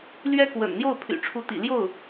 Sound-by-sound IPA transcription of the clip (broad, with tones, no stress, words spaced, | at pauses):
lɥɛ˥kwə̰˨˩n n̪jo˥˩ʊ̯pʰy̰˨˩ʈ͡ʂʰu˧˥t̪ḭ˨˩ ljo˥˩ʊ̯